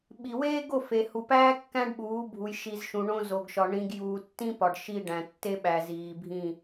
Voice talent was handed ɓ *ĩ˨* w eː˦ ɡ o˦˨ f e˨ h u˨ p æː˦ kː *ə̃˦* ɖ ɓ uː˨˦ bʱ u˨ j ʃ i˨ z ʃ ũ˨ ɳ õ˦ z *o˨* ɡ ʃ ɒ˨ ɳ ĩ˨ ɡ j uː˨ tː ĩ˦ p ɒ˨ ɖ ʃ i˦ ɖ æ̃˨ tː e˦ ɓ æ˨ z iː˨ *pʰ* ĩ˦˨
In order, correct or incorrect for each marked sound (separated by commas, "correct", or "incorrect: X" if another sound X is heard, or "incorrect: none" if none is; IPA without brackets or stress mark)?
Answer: incorrect: i˨, incorrect: æ̃˦, correct, incorrect: bʱ